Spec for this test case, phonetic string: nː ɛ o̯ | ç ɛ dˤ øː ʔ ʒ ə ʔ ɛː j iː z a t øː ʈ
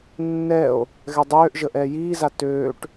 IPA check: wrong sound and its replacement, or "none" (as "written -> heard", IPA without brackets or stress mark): ç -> ɣ